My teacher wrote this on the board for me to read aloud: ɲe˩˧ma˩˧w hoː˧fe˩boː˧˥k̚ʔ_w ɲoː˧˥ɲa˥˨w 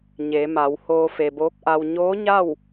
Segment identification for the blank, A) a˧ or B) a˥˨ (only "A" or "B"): A